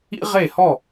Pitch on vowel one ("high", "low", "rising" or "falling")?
high